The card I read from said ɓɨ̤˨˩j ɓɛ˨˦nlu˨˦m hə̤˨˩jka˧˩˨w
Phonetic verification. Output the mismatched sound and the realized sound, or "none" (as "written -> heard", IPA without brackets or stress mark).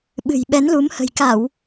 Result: none